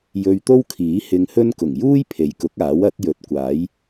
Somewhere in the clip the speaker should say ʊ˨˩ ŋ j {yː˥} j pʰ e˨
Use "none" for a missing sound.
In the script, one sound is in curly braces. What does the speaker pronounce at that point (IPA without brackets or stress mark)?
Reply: uː˥